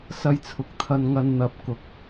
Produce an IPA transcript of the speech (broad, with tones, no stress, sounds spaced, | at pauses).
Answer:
s ɐ˧ j t͡sʰ ʊ˨˥ k̚ t̪ʰ ɐ˧ n ŋ ɐ˧ n n̪ ɐ˨˥ p̚ k ʊ˨ k̚